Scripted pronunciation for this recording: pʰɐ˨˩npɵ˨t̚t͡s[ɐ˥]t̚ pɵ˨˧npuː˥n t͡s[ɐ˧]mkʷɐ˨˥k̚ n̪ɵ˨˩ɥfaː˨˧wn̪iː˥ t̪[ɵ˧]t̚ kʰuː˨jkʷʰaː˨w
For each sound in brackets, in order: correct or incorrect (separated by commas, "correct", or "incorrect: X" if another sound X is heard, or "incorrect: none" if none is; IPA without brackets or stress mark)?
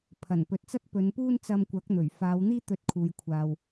correct, correct, correct